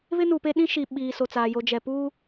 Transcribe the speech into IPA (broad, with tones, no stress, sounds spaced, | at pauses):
β ɪ˦ n u˨ p e˦ ɗ ĩ˦ ʃ i˨ ɓ iː˨ s o˨ t͡s aː˨ j o˨ d͡ʒ ɛ˨ p uː˦